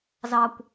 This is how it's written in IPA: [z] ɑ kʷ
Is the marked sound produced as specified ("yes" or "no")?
yes